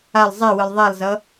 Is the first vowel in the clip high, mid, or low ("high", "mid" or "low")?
low